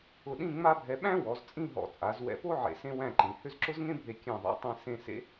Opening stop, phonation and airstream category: implosive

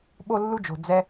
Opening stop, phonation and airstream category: implosive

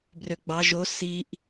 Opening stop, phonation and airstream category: plain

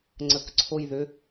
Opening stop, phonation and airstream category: click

